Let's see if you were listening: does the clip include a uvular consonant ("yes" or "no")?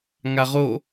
yes